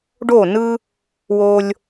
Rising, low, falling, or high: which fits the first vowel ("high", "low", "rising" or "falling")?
falling